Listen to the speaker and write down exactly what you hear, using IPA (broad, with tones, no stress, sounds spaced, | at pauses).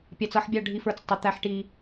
pʲ ɑ˨ t͡s ʌ˦˨ ħ bʲ ɑ˦˨ ɖʱ i˦ f ə˞˦ t͡s tˤ ɪ˨˦ t̪ æ˦ ħ ʈ i˦